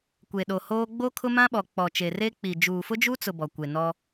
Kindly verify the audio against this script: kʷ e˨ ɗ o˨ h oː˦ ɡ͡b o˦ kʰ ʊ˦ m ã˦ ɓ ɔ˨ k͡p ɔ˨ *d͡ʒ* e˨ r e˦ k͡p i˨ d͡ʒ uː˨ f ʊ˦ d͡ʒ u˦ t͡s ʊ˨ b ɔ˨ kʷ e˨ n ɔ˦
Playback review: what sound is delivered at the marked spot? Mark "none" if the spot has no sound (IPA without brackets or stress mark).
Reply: t͡ʃ